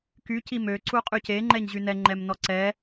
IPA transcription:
ky cimø ǀuqʼyce ŋ͡ǃɛɲʑynɛ ŋ͡ǃɛmnɔǀɛ

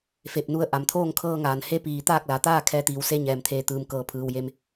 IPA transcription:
fe˧˩p̚nu˧˥ə̯ ʔa˩mt̪ʰoː˥˨ŋkʰɤː˧ŋaː˩n he˧˥piː˩ t̪aː˥˨k̚la˩˧t̪aː˥˨ kʰɛː˧˥t̪iː˩w se˧˥ɲɛː˩mt̪ʰeː˧˩ t̪ɯː˩mkɤː˩˧pʰɯː˩w je˧˥m

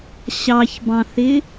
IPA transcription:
ɕɑçbɑ̃θɪ

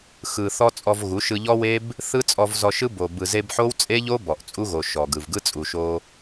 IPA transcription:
xɯ˨θɔ˧ t͡sʼɔ˧v ɣu˨˦ʃɯ˧ʎɔ˦we˦b | θɯ˦ t͡sʼɔ˧vzɔ˧ʃɯ˦ bo˨ bɯ˨ze˧b ħo˦wt͡sʼe˦ʎo˦ bɔ˨ʔt͡sʼu˧ɣo˨ ʃɔ˨ɡɯ˨v ɡɯ˦t͡sʼu˨ʃo˧

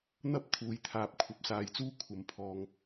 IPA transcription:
n̪ɐ˥p̚ t̪ʰuː˨jt̪ʰaː˨p̚ kʷʰɐ˨p̚saː˨˧jt͡suː˥ kʷʰɐ˨mpʰɔː˨ŋ

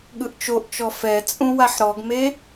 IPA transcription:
ɠɯʔt͡ʃoʔt͡ʃɔ fɛt͡sʼũ waħɾɔɡme

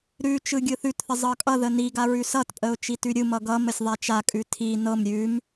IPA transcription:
ɾʉ t͡ʃɯɡʲɯθʉtθə zˤɤkʼʌðə niɡa ɹʉsʌtpʼəʊ̯ t͡ʃitʉɾʲɯmʌ ɡʌməsʲ ðˤat͡ʃakʼʉ tʰi nɤm ɾʲʉm

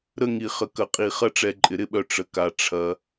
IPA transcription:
ɾə˦ŋi˨χə˨ kɐ˨qʼi˨χɐ˦ ʈ͡ʂɛ˨ǃʼɪ˩ɾɪ˦ɓœ˨ ʈ͡ʂə˩ka˩ ʈ͡ʂʰɐ˩

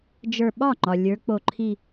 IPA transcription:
d͡ʒə˞˧˩ ɓɒ˥˩ ŋ͡ǃɒ˩ lʲə˞˨˥k͡po˧˩ ǃʰi˧˩

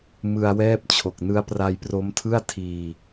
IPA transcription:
mɯ˧a̯wɛː˥˩p̚t͡ɕʰo˨˩k̚ nɯ˦˥a̯pra˧jpro˦˥mtʰɯ˥˩a̯ tʰiː˧

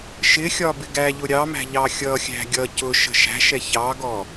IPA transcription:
ʃɪxʲɒ bɪɡæʎʊ ɾʲɑmæ̤ ʎɑxʲʌxʲæ̤ ɡʲʌ cʊ ʃə̤ʃæ̤ʃɛ çɑɡɔ

